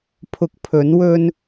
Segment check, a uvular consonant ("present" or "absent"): absent